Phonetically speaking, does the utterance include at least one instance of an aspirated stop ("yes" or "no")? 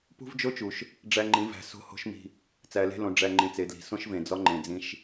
no